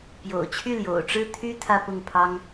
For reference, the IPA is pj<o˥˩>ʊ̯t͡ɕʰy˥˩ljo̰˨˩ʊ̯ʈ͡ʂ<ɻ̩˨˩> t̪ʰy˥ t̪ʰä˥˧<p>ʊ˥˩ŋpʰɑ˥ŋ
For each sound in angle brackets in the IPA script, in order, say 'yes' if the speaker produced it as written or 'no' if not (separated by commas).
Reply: no, no, yes